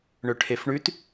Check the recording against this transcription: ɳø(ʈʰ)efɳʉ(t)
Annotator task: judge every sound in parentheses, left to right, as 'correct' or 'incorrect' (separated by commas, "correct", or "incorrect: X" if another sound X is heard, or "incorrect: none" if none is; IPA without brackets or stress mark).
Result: correct, correct